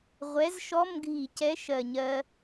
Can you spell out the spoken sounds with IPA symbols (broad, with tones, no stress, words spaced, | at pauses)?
ʁʷɛ˨˥zʃɔ˧˥˧m ɡʱi˧˩˧cɛ˨˥ʃɜ˨˩ ɲɜ˧